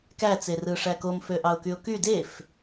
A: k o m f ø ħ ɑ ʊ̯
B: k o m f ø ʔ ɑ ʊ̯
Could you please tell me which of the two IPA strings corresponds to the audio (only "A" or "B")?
B